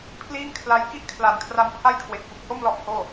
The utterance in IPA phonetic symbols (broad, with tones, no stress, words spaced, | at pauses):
pʰliː˥˩ŋkʰla˦˥j ki˥˩ʔkʰla˩˦nkʰra˧m pʰa˥˩jkʰwe˨˩k̚ fu˨˩k̚ho˥˩mlɔ˦˥ʔ hoː˥˩